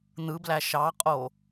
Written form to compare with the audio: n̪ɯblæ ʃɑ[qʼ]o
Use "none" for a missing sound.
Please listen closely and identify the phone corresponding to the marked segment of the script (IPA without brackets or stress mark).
qʼ